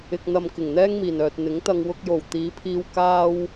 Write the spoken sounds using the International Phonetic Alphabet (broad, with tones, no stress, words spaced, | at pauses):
ɪ˧k̚n̪ɐ˧m kɪ˨˩ŋn̪ɛː˥ŋmiː˨˩nœː˨t̚ n̪ɪ˨˥ŋt̪ɐ˧ŋ wʊ˧k̚jo˨˩w t̪iː˨˧pʰiː˧w kaː˥w